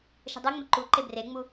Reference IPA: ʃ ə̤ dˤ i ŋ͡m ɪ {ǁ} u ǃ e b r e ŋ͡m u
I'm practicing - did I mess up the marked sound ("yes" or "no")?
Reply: yes